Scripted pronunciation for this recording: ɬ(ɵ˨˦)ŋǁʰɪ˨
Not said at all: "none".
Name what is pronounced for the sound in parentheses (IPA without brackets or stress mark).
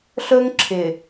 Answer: ɵ˦